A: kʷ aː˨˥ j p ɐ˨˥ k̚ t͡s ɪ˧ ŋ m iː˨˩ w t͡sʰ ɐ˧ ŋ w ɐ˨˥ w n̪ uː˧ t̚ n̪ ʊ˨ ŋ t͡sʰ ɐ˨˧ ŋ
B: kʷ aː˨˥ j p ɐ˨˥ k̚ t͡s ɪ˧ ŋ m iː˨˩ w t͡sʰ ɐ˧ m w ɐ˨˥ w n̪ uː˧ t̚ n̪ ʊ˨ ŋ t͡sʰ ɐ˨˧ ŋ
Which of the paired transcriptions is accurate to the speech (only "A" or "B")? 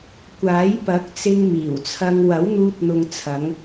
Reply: A